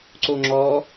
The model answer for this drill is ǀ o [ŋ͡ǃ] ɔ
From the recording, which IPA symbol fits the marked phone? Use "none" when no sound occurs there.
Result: ŋ͡ǁ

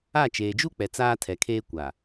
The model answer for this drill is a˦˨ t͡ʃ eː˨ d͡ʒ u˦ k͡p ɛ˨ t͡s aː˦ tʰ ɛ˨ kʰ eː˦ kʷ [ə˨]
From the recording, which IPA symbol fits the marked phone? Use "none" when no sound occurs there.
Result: a˨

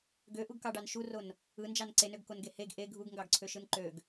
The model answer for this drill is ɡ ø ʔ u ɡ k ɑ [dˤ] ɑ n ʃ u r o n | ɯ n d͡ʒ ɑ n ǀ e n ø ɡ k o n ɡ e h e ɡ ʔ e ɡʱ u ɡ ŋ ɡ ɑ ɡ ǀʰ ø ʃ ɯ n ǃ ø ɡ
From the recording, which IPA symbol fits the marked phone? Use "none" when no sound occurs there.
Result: ɖ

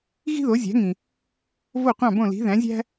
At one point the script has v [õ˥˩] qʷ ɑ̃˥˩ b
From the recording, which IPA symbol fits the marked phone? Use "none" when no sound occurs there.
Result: o˥˩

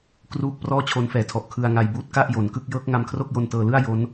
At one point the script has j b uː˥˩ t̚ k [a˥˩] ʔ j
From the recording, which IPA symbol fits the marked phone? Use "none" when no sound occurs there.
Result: a˥˩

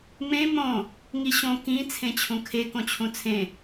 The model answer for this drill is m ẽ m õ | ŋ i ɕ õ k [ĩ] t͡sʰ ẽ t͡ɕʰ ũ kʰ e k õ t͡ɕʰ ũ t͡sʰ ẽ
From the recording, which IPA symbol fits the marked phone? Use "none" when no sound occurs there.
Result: ĩ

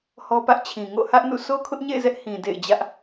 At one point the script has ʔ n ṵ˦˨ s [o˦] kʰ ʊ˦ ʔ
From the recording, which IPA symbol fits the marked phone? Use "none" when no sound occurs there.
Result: o˦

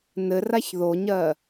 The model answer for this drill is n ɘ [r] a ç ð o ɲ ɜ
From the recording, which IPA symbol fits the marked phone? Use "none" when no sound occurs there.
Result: r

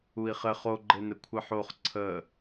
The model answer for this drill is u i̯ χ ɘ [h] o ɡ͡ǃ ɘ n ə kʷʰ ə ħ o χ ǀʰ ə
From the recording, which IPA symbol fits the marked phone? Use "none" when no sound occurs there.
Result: χ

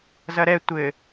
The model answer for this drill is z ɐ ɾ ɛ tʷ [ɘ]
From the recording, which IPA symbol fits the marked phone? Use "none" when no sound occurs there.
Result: ɘ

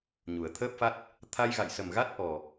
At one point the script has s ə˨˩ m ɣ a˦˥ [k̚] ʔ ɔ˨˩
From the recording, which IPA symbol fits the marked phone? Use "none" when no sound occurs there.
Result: t̚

